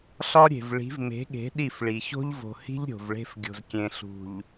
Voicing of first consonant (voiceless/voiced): voiceless